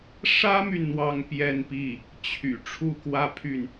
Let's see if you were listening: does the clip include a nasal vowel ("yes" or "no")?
no